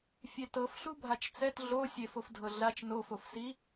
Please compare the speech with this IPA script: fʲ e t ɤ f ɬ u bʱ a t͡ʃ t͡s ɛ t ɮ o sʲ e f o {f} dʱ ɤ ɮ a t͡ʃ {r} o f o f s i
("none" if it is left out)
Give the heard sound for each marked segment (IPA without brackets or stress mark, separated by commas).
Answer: f, n